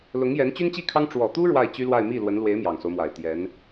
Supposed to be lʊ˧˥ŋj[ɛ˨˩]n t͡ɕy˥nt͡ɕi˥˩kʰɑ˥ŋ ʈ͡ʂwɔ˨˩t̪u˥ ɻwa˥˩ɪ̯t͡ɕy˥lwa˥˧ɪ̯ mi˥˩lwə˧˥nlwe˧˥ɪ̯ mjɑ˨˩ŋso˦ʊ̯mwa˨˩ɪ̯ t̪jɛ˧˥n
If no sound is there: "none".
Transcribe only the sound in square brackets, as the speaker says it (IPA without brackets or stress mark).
ɛ˧˥